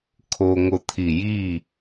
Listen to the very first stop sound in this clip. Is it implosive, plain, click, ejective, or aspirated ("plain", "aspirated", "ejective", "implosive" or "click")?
aspirated